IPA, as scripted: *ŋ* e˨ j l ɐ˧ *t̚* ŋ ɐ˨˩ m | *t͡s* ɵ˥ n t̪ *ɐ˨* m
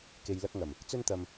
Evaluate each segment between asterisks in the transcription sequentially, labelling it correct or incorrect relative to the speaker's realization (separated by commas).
incorrect, incorrect, correct, incorrect